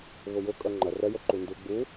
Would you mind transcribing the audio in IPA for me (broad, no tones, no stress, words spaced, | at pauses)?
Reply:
βʊjʊ kʼœŋ͡ǃɐ rɛ jəǃundu ɡ͡bu